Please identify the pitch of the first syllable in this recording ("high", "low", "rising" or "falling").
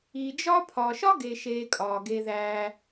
low